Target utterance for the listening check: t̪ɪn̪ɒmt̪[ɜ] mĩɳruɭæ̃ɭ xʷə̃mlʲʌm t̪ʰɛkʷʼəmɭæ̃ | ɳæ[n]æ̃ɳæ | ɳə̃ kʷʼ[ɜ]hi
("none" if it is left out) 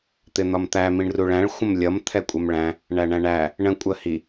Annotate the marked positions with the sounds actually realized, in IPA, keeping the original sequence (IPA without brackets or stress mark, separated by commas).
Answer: æ, ɳ, ɜ